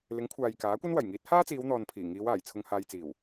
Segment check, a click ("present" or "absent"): absent